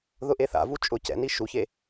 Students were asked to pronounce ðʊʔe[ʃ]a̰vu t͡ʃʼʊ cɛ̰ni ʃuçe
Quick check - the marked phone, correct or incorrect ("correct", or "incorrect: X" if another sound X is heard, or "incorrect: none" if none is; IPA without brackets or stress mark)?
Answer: incorrect: θ